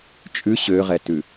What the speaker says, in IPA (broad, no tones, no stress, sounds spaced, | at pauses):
t͡ʃʼ ʉ ɕ ø ʁ ɛ t ʉ